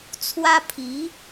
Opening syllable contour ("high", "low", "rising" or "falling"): high